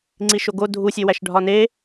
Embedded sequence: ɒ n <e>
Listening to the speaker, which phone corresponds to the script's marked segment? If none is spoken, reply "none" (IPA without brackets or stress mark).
e